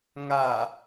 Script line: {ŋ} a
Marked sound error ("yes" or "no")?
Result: no